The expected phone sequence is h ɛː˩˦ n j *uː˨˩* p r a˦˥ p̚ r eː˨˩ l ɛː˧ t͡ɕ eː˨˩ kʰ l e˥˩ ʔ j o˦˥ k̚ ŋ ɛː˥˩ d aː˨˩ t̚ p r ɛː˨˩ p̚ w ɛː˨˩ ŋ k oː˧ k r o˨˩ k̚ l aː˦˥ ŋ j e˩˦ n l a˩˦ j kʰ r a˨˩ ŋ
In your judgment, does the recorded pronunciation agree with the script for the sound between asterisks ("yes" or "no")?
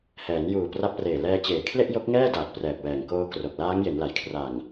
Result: yes